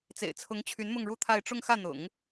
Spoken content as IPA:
t͡s ḛ˨˩ ɪ̯ t͡sʰ ʊ˧˥ ŋ t͡ɕʰ y˧˥ n m ʊ˥˧ ŋ ɻ u˥˧ t̪ʰ a˥˧ ɪ̯ ʈ͡ʂ ʊ˥˧ ŋ x ä˥˩ n̪ ʊ̰˨˩˦ ŋ

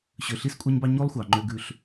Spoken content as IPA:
ɕ ø˨ ɬ i˦ s kʷʼ æ˦ ɲ b ɑ˦ ɲ o˦ lˠ xʷ ɑ˨ ŋ͡ǃ ø˦ ɡ ʉ˦ ɬ

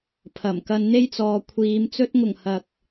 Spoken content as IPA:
pʰ ɐ˨˩ m k ɐ˧ n n̪ e˥ j t͡s ɔː˨ kʷʰ iː˨˧ m t͡s ɵ˧ t̚ ŋ ʊ˨˩ ŋ h ɐ˨ k̚

